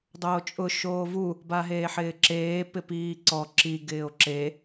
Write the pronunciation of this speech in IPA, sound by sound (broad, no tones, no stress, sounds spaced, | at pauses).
dˤ oː t͡ʃʼ ʊ ʃ oː v u | b a ɦ eː ħ ɪː ǁ eː p ɪ p iː ǀ ɔ ǁ i ɡ ɪː o̯ ǁ e